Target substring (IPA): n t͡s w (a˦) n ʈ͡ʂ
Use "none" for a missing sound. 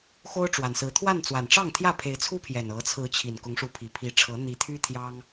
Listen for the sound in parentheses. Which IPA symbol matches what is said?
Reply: a˨˩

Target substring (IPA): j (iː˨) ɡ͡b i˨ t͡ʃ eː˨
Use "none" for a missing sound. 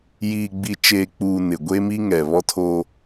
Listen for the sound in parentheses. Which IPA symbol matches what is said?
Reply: iː˨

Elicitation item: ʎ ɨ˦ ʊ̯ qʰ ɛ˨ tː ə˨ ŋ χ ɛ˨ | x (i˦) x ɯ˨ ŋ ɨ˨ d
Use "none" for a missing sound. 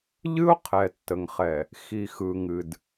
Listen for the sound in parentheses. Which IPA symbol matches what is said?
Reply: i˨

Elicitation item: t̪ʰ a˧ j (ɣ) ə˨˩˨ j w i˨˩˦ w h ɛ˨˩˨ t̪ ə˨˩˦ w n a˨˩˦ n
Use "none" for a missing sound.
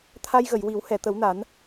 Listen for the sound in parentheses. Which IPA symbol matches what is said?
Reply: ɣ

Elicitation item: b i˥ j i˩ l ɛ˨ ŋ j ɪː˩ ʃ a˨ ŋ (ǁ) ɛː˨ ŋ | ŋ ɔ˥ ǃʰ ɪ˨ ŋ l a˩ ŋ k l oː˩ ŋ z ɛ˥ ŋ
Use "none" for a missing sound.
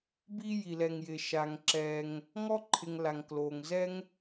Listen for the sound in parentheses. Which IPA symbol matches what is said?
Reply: ǁ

